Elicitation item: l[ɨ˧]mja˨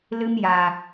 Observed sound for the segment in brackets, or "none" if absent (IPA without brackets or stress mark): ɨ˧